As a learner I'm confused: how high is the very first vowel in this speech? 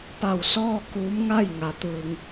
low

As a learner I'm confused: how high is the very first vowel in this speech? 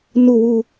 high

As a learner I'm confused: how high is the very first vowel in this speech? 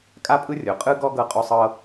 low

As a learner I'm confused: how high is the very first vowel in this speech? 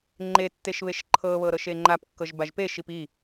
mid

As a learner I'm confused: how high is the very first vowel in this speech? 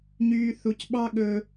high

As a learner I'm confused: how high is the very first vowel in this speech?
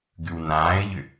high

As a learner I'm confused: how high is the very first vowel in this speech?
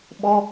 mid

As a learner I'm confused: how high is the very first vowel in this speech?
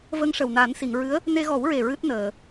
mid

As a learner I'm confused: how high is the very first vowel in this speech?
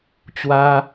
low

